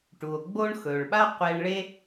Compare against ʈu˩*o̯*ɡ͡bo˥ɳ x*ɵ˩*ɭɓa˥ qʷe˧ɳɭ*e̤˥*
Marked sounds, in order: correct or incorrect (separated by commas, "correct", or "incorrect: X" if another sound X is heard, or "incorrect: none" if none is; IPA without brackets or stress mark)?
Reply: correct, correct, incorrect: e˥